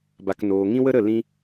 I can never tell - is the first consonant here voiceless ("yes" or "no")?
no